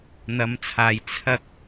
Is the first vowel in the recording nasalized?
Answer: no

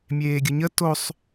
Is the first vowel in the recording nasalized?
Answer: no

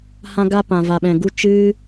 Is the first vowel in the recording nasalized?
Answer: yes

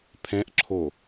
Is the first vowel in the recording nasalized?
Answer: yes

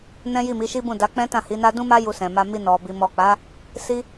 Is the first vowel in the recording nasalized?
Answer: yes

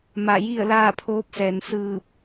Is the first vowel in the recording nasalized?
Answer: no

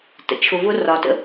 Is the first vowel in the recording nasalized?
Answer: no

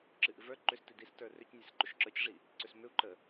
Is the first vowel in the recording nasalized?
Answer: no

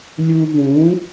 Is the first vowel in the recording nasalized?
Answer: no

